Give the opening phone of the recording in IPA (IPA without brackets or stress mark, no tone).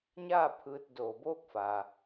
ɲ